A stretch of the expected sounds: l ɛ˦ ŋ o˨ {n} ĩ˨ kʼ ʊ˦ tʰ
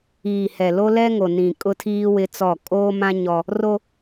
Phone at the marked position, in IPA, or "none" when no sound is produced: n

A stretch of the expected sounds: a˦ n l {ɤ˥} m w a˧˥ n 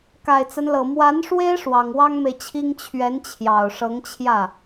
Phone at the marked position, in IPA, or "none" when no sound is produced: ɤ˨˩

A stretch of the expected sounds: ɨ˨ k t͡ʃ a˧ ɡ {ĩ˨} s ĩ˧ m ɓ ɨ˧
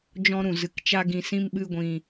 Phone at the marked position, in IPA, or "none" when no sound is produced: ĩ˨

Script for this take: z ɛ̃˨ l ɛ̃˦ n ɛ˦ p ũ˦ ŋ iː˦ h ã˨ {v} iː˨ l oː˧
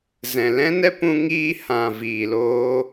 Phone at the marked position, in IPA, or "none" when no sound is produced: v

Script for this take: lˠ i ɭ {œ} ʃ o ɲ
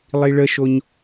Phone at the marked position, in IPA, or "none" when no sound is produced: ə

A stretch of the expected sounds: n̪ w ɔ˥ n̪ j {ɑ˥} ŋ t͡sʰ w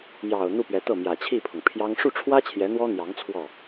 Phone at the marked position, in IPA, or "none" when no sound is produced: ɑ˧˥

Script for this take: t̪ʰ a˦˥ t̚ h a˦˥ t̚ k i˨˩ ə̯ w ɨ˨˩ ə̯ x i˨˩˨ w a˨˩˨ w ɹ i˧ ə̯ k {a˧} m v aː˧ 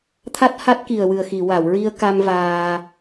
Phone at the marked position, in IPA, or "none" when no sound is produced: a˧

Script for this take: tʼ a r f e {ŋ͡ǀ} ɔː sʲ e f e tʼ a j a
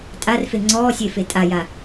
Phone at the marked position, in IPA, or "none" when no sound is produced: ŋ͡ǀ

